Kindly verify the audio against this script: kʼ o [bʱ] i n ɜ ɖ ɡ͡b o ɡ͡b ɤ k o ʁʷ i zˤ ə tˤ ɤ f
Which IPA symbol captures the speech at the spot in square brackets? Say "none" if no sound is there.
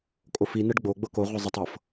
f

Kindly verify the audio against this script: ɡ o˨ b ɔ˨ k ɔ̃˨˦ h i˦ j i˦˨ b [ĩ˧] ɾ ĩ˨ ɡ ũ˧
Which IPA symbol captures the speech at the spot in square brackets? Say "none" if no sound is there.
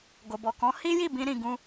ĩ˧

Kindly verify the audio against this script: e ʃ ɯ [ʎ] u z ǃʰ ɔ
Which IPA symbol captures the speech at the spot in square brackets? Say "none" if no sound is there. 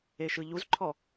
ʎ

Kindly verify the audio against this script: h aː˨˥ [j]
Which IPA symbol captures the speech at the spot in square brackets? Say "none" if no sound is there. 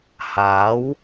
w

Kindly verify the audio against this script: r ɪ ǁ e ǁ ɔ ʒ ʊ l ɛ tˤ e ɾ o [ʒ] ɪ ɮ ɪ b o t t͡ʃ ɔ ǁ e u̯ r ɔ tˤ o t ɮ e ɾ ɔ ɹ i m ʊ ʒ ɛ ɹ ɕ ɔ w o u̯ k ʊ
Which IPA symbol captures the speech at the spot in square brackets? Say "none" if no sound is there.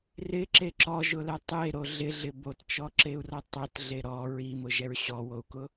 ɮ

